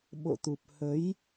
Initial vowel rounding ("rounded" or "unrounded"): rounded